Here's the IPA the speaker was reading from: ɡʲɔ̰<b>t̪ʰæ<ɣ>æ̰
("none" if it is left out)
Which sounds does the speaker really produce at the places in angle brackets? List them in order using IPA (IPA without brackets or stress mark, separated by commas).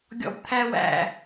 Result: b, w